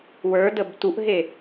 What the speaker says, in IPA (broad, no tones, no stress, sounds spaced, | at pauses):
w ə˞ d ə b t u ʔ ɦ e